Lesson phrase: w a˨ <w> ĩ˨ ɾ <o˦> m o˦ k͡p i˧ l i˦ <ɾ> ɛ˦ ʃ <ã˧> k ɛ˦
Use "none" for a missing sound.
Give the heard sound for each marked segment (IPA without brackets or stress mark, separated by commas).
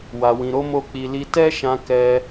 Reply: w, o˧, t, ã˧